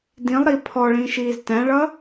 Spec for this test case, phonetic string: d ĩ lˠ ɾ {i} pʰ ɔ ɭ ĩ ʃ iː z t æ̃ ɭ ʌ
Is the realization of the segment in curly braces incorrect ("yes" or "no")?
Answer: no